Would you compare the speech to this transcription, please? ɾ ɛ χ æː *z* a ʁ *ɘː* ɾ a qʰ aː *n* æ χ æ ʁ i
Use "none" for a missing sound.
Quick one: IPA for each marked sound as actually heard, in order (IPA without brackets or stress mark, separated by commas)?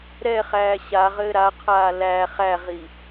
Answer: ɕ, ɘː, l